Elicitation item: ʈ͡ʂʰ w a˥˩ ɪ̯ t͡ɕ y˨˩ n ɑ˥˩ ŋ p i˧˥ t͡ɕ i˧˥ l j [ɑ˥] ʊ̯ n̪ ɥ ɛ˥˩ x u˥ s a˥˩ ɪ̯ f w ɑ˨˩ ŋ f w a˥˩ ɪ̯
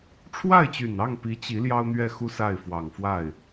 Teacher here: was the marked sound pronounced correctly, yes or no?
yes